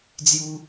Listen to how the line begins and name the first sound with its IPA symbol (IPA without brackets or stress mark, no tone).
d͡z